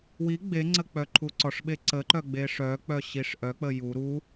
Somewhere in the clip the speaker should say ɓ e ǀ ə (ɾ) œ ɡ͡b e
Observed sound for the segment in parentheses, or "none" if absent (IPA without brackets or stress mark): ǃ